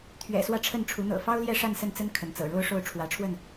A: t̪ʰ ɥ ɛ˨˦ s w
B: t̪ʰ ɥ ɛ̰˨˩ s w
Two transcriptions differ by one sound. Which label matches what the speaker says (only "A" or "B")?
B